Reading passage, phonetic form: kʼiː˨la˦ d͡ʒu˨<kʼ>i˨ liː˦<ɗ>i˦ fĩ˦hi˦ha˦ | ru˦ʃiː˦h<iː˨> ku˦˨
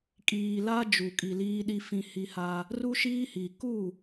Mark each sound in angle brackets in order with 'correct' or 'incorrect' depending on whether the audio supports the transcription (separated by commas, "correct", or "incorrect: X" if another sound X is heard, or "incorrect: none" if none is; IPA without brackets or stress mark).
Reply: correct, correct, incorrect: i˨